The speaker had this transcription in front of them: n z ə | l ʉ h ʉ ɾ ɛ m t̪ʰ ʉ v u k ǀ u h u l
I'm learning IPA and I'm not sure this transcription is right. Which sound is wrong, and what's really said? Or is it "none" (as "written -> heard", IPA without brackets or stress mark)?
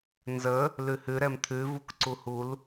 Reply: none